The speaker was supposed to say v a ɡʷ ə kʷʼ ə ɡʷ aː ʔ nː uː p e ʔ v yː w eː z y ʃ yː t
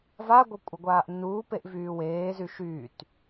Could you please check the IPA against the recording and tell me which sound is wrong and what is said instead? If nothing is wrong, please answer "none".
none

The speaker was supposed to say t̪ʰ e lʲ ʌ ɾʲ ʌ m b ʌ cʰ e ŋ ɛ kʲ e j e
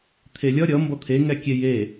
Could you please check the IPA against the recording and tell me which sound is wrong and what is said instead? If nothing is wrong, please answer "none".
cʰ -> t̪ʰ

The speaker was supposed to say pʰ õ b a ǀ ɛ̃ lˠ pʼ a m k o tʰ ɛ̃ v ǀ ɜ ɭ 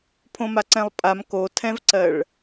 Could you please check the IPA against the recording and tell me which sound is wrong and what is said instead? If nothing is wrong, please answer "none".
b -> m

